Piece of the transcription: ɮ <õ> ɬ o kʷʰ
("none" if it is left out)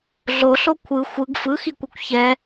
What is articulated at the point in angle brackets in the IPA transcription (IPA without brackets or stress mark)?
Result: o